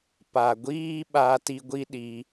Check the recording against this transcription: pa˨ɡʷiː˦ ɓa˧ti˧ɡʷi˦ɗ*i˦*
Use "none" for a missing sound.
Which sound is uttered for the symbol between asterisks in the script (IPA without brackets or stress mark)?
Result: i˧